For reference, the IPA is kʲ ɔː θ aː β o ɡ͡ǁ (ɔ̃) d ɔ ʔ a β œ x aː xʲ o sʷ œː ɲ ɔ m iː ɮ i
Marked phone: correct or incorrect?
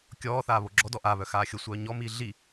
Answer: incorrect